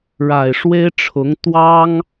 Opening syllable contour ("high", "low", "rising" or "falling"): low